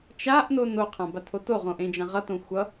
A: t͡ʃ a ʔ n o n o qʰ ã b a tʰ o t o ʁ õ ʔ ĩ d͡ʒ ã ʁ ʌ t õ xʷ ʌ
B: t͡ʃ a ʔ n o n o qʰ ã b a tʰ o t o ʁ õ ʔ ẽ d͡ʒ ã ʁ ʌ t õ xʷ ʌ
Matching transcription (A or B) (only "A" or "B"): B